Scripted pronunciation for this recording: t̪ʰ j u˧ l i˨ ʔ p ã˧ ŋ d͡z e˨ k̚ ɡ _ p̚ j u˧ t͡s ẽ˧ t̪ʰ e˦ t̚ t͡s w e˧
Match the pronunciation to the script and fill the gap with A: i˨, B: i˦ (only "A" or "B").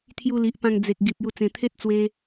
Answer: A